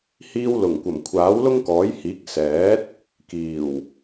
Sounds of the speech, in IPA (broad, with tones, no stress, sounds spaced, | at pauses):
h iː˧ w l ʊ˨˩ ŋ kʷ ɐ˨˩ m kʷʰ aː˨˥ w l ʊ˥ ŋ k ɔː˨˥ j h iː˨˥ k̚ s ɛː˨˥ t̚ | k iː˨˩ w